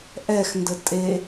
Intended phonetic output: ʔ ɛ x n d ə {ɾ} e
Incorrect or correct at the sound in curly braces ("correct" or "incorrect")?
incorrect